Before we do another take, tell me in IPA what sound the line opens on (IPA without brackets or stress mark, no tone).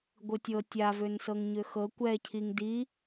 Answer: ɡʷ